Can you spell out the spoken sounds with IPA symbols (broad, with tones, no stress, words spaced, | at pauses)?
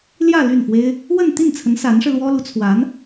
ljä˥˧ ly˥˩nfwe˥ɪ̯ | wə˥˧n t̪i˥˩nt͡sʰə˧˥n sa˧˥nʂɻ̩˧lwɔ˥lu˧˥ t͡sʰwa˧˥n